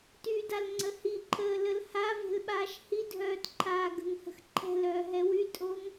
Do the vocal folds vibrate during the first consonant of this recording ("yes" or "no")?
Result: no